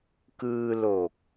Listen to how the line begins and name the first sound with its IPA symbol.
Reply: k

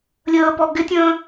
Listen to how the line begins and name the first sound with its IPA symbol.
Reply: lʲ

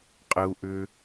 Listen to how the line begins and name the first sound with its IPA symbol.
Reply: qʼ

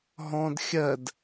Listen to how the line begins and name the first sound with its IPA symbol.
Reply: ɦ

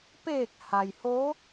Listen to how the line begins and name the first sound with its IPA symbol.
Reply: p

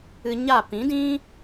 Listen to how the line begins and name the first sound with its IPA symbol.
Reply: ɨ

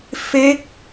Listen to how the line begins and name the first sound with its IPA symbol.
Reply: f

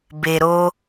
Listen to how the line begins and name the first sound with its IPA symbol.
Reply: b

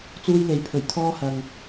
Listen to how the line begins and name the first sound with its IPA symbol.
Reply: t͡s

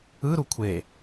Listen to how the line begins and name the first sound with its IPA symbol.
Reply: ɯ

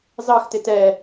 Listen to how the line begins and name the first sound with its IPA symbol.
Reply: z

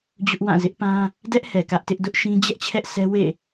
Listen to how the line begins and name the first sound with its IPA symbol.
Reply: d͡ʑ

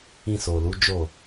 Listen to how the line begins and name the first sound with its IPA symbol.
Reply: ĩ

